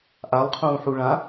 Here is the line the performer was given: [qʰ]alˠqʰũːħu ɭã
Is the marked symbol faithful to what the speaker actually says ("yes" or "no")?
no